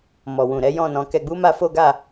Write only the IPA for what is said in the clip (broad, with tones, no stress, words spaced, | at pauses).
mɔ˨wũ˨ɾɛ˨˦ jɔ̃˦˨nɔ̃˨˦kɛ˧ ɡ͡bu˦ma˦fo˦ɡa˦˨